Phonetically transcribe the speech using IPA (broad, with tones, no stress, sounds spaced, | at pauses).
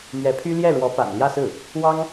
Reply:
m ɥ ɛ˧˥ pʰ y˥ l j ɛ˥˩ ɻ w ɔ˧˥ p a̰˨˩ n l j ä˥˧ s ɹ̩˥˩ | w ɑ˥ ŋ